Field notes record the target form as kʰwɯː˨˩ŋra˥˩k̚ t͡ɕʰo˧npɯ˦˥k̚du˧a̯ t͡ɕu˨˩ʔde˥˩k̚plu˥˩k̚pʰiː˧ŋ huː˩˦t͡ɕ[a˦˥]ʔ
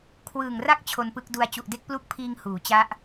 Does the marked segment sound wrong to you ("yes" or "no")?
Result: no